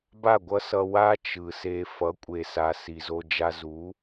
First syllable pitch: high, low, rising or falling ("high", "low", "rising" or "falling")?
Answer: falling